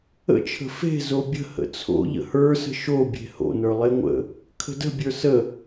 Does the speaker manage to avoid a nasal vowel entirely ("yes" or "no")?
yes